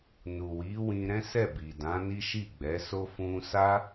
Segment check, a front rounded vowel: absent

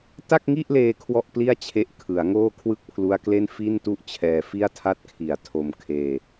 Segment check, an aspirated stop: present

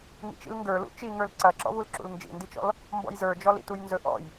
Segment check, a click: present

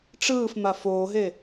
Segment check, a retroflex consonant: present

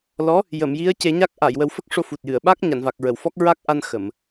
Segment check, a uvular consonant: absent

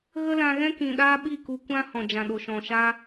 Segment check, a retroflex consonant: absent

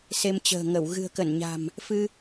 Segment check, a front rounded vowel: absent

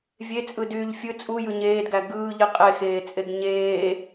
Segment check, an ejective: present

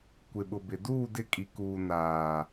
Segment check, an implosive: present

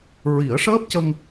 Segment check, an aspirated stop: absent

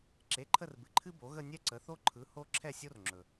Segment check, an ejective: absent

